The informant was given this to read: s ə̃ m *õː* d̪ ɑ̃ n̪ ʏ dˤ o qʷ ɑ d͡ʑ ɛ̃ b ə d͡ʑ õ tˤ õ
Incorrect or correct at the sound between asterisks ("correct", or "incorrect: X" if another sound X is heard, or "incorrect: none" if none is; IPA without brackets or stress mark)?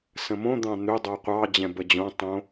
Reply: incorrect: õ